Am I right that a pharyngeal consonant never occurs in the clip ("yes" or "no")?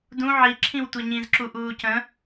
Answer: no